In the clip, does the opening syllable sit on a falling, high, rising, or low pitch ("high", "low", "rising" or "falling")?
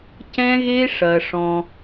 high